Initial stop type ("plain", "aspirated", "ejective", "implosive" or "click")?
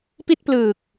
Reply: plain